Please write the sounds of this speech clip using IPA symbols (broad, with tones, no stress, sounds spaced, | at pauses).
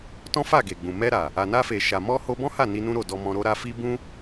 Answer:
t ɔ̃˦ f a˦˨ ɡ e˨ ɡ͡b ũ˨ m ɛ˧ ɾ a˨ | a˨ n a˧ f e˨ ʃ a˨ m ɔ˧ h o˧ b ɔ̃˦ h a˦˨ n i˧ n ũ˦ ɾ o˦˨ d ɔ˧ m ɔ̃˧ ɾ o˦ ɾ a˦ f i˦ b ũ˦